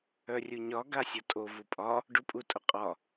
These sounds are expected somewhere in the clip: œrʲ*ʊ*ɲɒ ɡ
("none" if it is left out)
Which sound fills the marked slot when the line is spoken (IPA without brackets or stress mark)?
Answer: u